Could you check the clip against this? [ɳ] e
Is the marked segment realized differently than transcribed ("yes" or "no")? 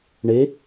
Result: no